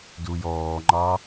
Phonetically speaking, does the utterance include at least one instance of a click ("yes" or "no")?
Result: yes